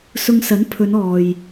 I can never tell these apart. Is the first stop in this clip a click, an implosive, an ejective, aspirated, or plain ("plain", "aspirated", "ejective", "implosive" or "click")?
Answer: aspirated